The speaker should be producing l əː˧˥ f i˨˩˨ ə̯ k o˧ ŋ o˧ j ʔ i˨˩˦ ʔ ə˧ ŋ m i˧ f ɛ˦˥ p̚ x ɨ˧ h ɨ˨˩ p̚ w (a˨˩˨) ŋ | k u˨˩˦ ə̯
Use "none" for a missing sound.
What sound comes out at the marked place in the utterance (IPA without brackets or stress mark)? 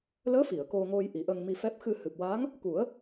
a˧˥